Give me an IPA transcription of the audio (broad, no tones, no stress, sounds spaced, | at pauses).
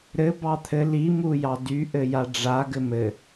ɾ ɘ b ɑ t̪ʰ ɘ l i m u j ɑ d y ʔ ɘ j a ɖ͡ʐ a ɡ ɘ m ɘ